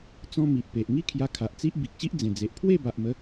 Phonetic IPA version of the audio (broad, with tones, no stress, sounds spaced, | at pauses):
t͡s ɔ̃˧ m i˨ ʔ p e˨ ʔ ŋ i˥˧ kʰ j a˧ kʰ a˨ ʔ t͡s i˦ ʔ b i˨ k̚ ɕ i˦ ʔ d͡z ẽ˨˩ d͡z e˨ ʔ pʰ w e˥˧ b a˨ ʔ m ə˨˦